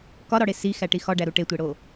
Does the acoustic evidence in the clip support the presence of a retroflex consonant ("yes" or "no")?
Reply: yes